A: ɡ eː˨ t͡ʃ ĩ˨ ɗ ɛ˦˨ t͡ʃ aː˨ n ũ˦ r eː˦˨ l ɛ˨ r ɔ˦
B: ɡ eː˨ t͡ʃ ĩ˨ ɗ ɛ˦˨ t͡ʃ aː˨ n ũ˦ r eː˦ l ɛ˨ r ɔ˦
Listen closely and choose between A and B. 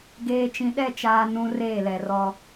A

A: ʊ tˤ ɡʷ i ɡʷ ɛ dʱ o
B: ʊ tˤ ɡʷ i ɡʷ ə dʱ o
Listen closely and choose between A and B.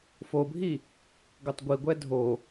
A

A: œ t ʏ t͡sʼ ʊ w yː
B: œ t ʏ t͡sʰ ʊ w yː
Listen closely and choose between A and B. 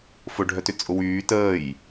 A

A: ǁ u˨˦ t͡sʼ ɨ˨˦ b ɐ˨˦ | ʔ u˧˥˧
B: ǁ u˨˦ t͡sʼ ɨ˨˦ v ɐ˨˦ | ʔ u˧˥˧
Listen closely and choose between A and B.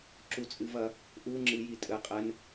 B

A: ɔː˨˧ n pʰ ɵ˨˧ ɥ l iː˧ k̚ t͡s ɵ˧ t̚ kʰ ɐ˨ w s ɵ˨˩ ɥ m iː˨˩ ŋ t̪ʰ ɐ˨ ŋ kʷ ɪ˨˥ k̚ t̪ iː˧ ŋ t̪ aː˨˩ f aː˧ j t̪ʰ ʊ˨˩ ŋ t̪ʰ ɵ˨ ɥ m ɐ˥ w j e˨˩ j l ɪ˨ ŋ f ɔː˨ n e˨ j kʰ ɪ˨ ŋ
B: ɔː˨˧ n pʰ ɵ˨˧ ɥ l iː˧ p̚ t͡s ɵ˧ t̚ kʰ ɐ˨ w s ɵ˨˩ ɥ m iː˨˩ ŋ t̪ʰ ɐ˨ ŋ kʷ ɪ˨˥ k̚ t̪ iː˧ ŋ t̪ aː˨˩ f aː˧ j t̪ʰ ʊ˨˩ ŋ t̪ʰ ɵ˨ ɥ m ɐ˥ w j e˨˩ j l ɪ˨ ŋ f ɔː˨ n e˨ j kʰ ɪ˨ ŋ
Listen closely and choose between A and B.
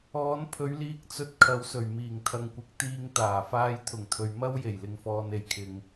A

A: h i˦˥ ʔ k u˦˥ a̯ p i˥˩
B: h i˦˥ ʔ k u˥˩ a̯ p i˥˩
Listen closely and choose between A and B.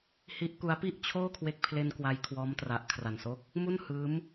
A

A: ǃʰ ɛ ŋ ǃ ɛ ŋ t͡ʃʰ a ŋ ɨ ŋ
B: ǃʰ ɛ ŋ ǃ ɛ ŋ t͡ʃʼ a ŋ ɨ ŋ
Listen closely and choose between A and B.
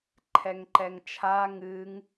A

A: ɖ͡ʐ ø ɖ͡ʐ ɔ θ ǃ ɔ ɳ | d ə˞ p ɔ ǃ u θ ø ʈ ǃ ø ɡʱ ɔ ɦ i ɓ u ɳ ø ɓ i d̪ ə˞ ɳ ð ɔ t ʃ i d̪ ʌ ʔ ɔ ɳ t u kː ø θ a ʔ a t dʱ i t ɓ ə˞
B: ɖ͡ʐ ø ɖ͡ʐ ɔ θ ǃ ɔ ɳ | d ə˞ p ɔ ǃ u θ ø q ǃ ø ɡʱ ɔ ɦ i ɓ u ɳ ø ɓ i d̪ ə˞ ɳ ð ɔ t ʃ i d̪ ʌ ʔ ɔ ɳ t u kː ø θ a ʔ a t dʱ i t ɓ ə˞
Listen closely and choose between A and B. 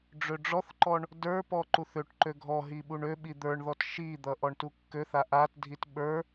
A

